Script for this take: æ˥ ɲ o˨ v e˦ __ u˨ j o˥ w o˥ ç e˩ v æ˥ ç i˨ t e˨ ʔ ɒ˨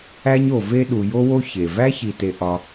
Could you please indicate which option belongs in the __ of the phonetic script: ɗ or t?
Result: ɗ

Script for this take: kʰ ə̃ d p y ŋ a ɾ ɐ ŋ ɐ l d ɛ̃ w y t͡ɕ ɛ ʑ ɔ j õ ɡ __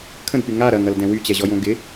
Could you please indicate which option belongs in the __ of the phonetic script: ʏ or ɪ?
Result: ɪ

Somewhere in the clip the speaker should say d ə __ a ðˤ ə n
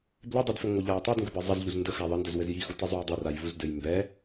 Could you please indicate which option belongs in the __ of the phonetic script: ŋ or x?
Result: x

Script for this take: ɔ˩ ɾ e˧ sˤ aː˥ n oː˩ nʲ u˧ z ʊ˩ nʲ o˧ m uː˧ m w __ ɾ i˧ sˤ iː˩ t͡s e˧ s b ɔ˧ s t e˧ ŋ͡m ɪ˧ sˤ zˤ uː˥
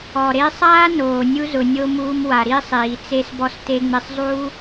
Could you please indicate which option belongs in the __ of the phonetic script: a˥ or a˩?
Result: a˩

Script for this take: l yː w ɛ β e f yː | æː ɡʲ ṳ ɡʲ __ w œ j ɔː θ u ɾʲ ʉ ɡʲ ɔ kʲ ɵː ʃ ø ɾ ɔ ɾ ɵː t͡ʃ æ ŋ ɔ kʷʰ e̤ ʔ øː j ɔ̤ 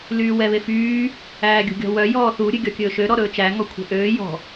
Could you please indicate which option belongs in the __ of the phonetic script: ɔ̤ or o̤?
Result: ɔ̤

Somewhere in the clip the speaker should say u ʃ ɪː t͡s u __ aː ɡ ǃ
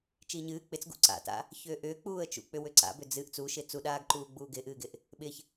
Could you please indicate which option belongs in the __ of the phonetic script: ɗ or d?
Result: ɗ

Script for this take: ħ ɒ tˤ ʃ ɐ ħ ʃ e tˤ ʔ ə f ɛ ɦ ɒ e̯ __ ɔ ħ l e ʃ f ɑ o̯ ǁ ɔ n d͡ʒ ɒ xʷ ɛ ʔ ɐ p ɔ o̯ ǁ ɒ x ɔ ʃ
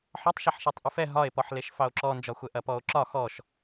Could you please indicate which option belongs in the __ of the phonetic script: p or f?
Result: p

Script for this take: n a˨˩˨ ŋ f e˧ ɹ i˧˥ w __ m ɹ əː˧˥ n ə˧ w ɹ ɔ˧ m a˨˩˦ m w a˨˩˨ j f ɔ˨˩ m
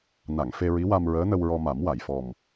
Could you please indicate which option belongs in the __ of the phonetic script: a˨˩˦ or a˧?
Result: a˧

